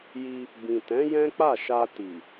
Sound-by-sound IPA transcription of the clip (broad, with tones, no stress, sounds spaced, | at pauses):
j i˧ | b ĩ˨ t ɛ̃˨˦ j ɛ̃˦ k͡p a˦˨ ʃ a˧ t i˨